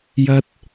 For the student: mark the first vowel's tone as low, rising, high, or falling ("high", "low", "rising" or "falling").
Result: high